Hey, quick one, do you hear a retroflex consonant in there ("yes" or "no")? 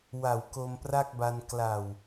no